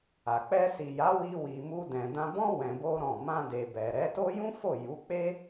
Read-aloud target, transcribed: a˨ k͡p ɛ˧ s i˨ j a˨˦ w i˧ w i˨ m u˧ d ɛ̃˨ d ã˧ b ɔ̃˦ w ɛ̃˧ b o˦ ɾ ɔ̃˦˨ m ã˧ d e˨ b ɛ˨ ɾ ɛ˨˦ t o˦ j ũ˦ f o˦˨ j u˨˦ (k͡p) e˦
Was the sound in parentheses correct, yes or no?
yes